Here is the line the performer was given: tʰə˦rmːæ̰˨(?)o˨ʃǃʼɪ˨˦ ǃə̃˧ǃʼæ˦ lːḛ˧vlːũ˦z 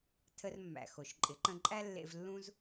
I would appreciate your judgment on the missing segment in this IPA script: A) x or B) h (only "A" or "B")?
A